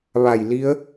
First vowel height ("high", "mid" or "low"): low